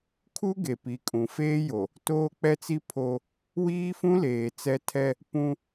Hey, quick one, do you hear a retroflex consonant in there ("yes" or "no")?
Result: no